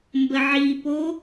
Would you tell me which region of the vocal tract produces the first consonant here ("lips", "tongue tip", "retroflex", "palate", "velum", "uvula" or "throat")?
lips